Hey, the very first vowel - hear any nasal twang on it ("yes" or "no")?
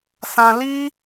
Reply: yes